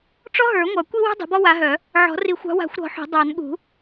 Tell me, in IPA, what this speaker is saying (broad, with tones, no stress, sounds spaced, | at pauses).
ʈ͡ʂ ɔ˥ ɦ ə˞˨˩˦ ŋʷ ɑ˨˩˦ kʷ i˥ w ṳ˥ dˤ o̤˨˦ b ɔ˥ w a˨˦ ɦ œ˨˩˦ | ʕ ɔ̤˨˩˦ r i˨˩˦ xʷ ɑ̤˨˦ w a̤˨˩˦ xʷ ɾ ɔ̤˨˩˦ ħ o̤˨˩˦ dˤ ɑ˨˩˦ n ɠ ṳ˨˩˦